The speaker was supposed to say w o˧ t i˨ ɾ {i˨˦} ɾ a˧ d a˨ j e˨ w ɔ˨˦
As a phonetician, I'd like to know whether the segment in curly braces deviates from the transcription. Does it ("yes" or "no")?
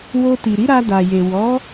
no